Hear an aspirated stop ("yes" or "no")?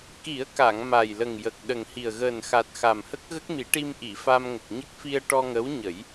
no